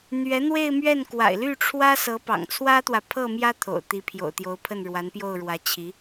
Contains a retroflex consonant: yes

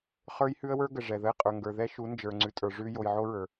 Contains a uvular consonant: yes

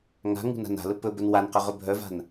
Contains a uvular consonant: yes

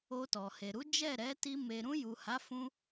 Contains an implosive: no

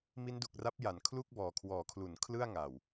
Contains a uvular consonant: no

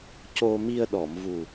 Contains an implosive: yes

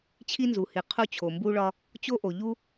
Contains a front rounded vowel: no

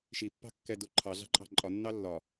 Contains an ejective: yes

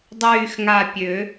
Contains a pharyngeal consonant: no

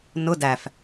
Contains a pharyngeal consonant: no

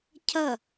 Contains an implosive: no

